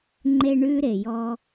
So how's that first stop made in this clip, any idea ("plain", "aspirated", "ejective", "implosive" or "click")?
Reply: click